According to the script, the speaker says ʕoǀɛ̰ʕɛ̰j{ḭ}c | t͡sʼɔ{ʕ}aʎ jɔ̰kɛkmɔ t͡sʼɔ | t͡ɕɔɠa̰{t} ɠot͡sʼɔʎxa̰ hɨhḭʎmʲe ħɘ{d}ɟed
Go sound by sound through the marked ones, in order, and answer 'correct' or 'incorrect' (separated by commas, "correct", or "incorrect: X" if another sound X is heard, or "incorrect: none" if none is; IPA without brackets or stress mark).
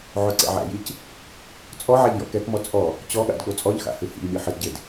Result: incorrect: i, correct, incorrect: d, correct